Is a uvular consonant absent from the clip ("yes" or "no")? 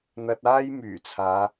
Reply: yes